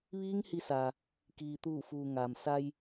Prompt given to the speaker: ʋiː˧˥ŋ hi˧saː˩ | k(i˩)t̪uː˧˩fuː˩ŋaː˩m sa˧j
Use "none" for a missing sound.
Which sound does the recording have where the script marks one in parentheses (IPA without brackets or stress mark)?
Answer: iː˩